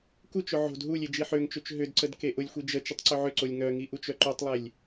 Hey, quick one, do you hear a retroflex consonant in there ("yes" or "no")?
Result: no